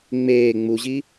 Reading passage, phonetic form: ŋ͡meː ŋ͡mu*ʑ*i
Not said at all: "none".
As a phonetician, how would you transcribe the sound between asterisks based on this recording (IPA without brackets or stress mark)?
ʑ